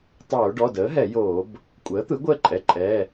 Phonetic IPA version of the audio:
tˤ oː˧˩˧ ɖ ɔ˩˧˩ d əː˩˥ ɦ ɛ˧˩˧ j oː˧˩˧ b | kʷʼ əː˩˥ t̪ ɯ˩˥ ɡʷ əː˥˧ ǃʼ ɛ˩˧˩ ǃʼ ɛː˩˧˩

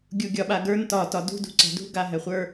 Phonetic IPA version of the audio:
ɡʲ u ɡʲ ɒ ɓ a ɡ ə˞ n t ɒ t ɒ d ṳ d ṳ ǀ ɛ̤ d ṳ ɡ a ɦ ɛ χʷ ə˞

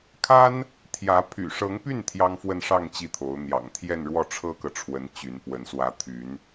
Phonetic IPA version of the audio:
kʰ a˥ n | t̪ʰ j ä˧˥ pʰ y̰˨˩ ʂ ɤ˧˥ ŋ p y˥˩ n t̪ʰ j ɑ˥ ŋ f w ə˥˧ n ʂ ɑ˥˧ ŋ t͡ɕ i˥˩ t̪ʰ o˧˥ ʊ̯ n̪ j ɑ̰˨˩ ŋ t̪ʰ j ɛ˥˧ n ɻ w ɔ˥˩ ʈ͡ʂʰ ɤ˥ k ɤ˨ ʈ͡ʂʰ w ə˧˥ n t͡ɕ y˧˥ n p w ə˧˥ n s w ä˧˥ t̪ʰ y˧˥ n

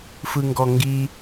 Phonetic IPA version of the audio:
f ɯ ŋ ɡ ɔ ŋ ɡ i

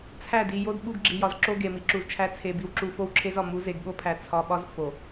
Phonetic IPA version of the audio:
t͡sʰ æ˦˨ d i˨ j o˦ d ɓ u˦ ɡ ɡ͡ǁ i˨ j ɒ˨ z ǁ o˦ ɡ e˨ m i˨ ǁ u˨ z t͡ʃʰ æ˦ t͡sʰ e˨ b i˨ w ǁ u˨ f o˦ w ǁʰ e˦ z ɒ˨ m u˨˦ z e˨ ɡ ɠ o˦ pʰ æ˨ t͡sʰ ɒ˨ ɓ ɒ˦ z f o˨

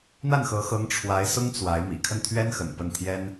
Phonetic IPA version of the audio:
n̪ a˥˩ n x ɤ˧˥ x ɤ˧˥ ŋ ʈ͡ʂʰ w a˧˥ ɪ̯ s ʊ˥ ŋ t͡s w a˧˥ ɪ̯ m ḭ˨˩ kʰ ə˥˩ n t̪ʰ ɥ ɛ˥ n x ə̰˨˩ n p ə˥˩ n t̪ʰ j ɛ˥ n

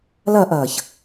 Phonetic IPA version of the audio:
l ɐː ʔ ɐː ç

